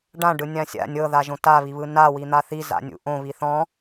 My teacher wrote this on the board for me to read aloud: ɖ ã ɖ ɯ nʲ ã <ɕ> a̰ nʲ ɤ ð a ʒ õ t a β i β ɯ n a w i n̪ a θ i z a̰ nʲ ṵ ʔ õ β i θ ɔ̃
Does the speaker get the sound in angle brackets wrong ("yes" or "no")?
yes